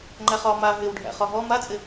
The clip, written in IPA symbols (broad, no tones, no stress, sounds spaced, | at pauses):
ŋ͡ǃ æ χ ɒ m a ɦ ɪ w ɖʱ æ̰ χ ɒ ɦ ɔ m a t͡sʼ ɪ